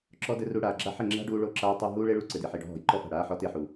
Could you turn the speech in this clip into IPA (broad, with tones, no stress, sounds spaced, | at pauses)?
ǁ ɔ˧ d ɘ˧ r u˧ ɽ aː˨ ɡ͡ǁ a˦ ħ ɘ˦˨ ŋ͡ǁ a̤˦ ɖ uː˧ ɭ o˧ ǁ aː˧ tˤ o˧ ɦ uː˦ ɭ e˦ ɭ u˧ ǀ ɘ˨ d e˨ ħ i˨ ɖ ɔ̤˧ ɦ ɔ̤˨ j ǃ ɔ˦ f a̤˨ ɽ aː˦ ħ ɔ˧ t e˦˨ ħ u˨